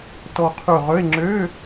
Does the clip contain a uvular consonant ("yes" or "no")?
yes